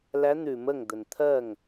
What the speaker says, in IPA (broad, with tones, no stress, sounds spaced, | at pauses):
l æ˧˥ n̪ ʉ˧˩˧ m ə˥˩ ŋ d̪ ə˨˩ n t̪ʰ ɜ˥˩ ŋ